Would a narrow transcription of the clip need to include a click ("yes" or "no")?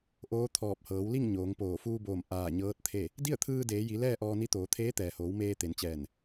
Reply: no